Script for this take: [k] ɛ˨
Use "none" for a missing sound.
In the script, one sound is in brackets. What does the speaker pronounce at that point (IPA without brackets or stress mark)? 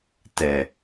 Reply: t